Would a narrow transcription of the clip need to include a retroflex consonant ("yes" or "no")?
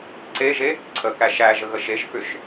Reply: no